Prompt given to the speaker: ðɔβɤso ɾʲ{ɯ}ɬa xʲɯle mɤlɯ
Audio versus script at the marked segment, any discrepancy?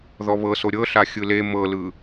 yes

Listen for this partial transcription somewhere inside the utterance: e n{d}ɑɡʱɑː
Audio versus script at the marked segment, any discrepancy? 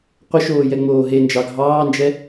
yes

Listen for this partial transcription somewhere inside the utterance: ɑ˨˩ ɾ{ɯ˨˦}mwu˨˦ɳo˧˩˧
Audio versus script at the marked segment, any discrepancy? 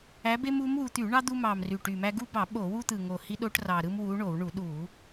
yes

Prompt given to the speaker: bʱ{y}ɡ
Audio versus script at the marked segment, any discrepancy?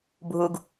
yes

